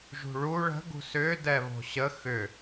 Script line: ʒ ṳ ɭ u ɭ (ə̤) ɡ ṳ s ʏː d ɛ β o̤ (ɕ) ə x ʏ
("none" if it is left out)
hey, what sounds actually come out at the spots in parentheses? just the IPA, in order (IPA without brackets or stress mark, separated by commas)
ə̤, ɕ